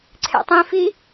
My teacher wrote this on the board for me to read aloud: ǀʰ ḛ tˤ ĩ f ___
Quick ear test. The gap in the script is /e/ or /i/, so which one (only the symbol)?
i